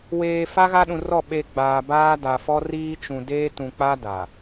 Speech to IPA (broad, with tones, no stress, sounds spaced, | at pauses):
w eː˨ f a˦ ɣ a˦ ɗ ũ˨ r ɔ˦˨ ɓ e˨ ɡ͡b aː˨ b aː˦ d a˨ f ɔ˦ r iː˦ t͡ʃ ũ˨ d eː˦ t ũ˨ k͡p a˦ d a˨